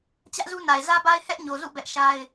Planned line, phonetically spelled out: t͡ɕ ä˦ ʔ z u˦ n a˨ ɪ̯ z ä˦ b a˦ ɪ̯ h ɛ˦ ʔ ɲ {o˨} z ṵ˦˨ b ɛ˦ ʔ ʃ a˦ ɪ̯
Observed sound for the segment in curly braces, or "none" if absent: o˨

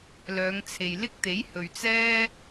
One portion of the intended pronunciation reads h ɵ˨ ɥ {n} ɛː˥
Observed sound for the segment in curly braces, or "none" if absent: t͡s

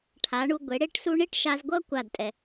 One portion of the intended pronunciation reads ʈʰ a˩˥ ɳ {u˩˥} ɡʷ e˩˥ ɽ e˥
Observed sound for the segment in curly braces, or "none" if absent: u˧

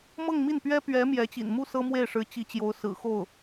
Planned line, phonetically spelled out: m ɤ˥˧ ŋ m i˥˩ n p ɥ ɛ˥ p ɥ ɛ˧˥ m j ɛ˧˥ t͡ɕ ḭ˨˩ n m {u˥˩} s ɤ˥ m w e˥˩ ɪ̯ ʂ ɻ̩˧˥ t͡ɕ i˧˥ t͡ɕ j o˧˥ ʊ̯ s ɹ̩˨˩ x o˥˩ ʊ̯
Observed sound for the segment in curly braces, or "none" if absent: u˥˩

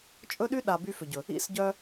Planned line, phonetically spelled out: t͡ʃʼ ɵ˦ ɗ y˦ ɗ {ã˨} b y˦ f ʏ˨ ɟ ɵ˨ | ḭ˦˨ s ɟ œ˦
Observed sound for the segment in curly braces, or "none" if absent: a˨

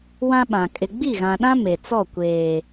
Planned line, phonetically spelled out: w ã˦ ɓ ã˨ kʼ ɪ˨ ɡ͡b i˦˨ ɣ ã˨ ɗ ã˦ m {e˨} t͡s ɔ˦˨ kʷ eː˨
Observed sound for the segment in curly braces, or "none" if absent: e˨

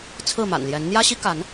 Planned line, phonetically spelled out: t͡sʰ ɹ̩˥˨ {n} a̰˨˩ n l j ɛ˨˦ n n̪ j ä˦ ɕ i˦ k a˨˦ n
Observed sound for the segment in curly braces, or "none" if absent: m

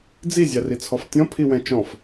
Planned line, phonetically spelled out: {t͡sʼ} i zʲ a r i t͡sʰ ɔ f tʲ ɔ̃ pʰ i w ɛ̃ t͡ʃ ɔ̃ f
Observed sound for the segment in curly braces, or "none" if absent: d͡z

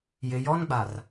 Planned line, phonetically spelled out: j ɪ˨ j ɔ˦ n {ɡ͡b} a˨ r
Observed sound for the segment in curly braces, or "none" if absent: ɡ͡b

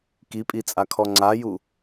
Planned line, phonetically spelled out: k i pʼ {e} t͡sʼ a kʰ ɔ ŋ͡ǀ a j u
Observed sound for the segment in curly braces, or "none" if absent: i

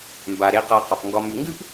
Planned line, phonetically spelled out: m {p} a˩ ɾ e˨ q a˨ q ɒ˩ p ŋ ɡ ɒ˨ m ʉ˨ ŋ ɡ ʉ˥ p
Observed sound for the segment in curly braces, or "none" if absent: b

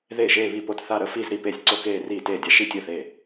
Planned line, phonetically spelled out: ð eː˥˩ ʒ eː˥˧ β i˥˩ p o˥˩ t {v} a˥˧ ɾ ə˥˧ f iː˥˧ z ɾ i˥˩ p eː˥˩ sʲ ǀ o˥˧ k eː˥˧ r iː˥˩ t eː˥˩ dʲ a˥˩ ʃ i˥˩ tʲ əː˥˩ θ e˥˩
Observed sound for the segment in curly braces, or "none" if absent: θ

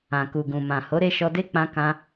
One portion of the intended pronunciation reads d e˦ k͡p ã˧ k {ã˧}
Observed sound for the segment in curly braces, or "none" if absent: ã˧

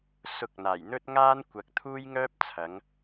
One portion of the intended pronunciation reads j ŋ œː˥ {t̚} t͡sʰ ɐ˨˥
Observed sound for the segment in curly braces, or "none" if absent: p̚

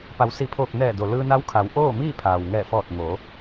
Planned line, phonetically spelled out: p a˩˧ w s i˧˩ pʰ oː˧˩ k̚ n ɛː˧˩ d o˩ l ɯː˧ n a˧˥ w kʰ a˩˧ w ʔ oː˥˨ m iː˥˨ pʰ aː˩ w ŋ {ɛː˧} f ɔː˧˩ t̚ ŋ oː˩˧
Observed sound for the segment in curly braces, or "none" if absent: ɛː˧˩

